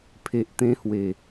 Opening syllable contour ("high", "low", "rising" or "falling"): low